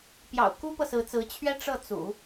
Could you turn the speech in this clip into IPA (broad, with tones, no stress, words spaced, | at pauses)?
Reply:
pjɑ̰˨˩ʊ̯ku˥pɤ˨ sɹ̩˧˥t͡sɹ̩˧˥ t͡ɕʰɥɛ˥ ʈ͡ʂɤ˥˩t͡sṵ˨˩˦